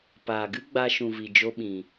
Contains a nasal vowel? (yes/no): yes